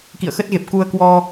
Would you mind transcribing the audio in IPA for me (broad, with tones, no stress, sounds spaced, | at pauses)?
k ḭ˧˨ ə̯ x ə˦˥ t̚ ɣ e˨˩ p̚ k u˧ ə̯ k w ɔ˧